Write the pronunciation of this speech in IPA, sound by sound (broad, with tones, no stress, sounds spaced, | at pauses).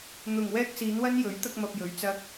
n̪ ʊ˨ ŋ w ɛː˧ k̚ s iː˨˧ n w ɐ˧ n j ɵ˨˥ ɥ t̪ ɐ˧ k̚ m ɐ˨ p̚ j ɵ˨˧ ɥ t͡s ɐ˧ k̚